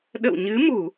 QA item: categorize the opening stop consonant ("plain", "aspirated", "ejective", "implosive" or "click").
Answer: implosive